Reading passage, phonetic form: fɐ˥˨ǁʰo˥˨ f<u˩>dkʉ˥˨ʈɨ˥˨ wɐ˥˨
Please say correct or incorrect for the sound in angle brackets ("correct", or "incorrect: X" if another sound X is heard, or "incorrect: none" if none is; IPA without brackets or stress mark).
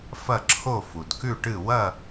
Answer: correct